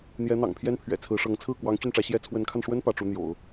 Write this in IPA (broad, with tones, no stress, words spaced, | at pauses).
n̪jɛ˧˥n̪ɑ̰˨˩ŋ pʰjɛ˥npʰɥɛ̰˨˩t͡sʰɹ̩˧˥ʂɤ˧˥ŋ t͡sʰɹ̩˥˩ kwɑ˧˥ŋ t͡ɕy˥˩nʈ͡ʂä˧˥ ɕjɛ˥ t͡sʰwə˧˥nkʰa˧nʂwə˥n pä˧˥ʈ͡ʂu˧˥n̪jo̰˨˩˦ʊ̯